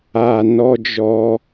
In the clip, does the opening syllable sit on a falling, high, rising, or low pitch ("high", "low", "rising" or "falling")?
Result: low